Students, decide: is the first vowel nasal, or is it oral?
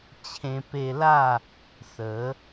nasal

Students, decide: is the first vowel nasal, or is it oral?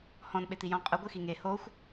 nasal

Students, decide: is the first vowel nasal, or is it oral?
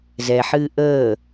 oral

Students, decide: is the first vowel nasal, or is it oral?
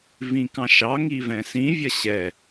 nasal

